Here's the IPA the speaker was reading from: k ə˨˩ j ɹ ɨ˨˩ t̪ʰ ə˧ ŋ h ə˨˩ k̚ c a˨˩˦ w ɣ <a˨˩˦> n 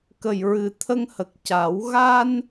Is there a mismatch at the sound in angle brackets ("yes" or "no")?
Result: yes